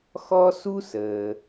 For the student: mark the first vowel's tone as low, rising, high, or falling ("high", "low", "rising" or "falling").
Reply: high